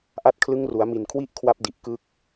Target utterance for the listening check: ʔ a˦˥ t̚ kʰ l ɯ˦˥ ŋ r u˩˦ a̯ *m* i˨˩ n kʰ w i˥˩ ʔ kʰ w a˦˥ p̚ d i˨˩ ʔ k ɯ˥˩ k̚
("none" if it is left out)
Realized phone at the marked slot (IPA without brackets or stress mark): m